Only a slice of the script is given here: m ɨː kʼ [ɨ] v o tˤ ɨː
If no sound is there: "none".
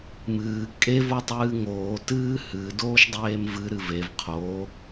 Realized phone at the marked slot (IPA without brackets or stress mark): e